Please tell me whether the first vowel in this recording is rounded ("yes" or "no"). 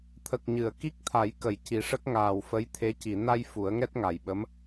no